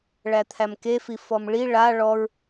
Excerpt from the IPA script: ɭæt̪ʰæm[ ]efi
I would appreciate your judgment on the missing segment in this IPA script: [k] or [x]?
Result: k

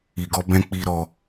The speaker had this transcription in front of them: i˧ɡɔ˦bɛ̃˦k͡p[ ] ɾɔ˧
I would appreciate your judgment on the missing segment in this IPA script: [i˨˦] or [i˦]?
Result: i˦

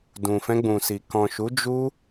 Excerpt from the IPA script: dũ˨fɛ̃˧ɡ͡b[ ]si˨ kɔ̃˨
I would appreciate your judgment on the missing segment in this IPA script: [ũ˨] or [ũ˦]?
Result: ũ˨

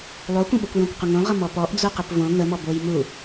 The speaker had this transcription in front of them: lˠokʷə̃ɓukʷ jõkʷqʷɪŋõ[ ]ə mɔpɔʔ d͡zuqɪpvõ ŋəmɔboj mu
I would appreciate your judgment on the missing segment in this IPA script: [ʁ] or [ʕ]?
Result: ʁ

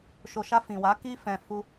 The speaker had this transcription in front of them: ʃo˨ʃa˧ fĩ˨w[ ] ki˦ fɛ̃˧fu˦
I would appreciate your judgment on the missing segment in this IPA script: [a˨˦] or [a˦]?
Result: a˨˦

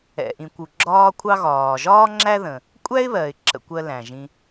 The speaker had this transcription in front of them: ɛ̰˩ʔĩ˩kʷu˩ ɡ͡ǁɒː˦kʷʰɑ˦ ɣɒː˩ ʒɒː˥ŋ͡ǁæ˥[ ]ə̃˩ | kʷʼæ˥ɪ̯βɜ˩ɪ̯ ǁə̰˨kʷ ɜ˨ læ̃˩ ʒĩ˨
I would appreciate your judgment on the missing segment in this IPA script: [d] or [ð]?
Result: ð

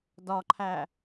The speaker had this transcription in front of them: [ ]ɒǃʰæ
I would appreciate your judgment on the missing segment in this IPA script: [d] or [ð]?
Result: d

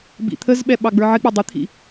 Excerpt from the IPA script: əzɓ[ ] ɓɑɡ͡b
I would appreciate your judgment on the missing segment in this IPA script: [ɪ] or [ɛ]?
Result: ɛ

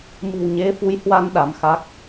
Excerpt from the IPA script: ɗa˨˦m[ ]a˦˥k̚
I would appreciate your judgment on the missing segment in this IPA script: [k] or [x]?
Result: x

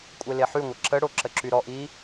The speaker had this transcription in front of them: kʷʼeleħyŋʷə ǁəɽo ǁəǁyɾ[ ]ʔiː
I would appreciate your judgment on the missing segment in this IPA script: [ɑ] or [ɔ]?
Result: ɔ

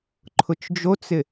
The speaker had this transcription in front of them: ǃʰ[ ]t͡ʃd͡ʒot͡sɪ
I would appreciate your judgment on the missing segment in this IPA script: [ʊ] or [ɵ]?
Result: ʊ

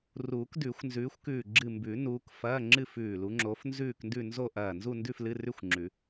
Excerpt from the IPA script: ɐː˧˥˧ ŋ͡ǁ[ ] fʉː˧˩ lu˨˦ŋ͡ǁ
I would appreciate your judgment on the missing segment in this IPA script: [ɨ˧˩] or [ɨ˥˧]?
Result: ɨ˥˧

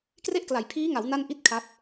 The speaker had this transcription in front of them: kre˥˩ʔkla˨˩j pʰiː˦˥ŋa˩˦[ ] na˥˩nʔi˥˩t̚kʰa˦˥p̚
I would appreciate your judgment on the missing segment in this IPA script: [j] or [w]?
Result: w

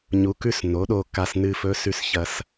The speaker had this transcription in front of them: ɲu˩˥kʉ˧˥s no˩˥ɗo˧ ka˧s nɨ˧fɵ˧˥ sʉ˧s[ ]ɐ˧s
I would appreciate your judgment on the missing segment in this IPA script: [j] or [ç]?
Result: ç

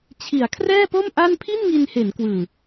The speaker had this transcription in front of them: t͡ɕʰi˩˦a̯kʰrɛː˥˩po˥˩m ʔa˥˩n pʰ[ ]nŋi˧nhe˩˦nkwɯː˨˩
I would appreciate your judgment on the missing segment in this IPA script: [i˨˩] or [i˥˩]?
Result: i˥˩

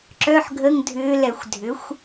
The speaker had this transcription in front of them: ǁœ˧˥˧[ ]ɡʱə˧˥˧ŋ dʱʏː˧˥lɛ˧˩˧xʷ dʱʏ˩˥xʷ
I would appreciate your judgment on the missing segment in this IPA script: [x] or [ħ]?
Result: ħ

